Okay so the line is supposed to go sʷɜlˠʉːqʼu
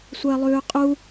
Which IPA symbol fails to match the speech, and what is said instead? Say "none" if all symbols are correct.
none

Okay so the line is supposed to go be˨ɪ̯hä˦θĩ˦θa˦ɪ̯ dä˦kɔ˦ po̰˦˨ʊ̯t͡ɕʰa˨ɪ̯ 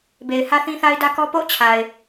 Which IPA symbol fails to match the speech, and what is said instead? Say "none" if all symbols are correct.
none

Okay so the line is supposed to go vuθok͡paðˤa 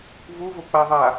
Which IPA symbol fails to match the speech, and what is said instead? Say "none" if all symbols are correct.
θ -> v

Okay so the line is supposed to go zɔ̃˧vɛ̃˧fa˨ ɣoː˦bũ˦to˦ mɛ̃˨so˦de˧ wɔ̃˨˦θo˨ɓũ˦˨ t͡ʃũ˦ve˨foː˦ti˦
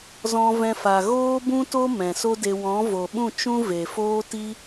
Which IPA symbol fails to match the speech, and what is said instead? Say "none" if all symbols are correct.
θ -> v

